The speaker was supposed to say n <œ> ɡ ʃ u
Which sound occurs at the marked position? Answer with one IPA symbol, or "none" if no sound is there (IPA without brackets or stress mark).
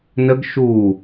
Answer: ə